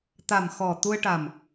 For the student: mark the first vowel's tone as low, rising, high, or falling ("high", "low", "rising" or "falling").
low